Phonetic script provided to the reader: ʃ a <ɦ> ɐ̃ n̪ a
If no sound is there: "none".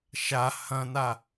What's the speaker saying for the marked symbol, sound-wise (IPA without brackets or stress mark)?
h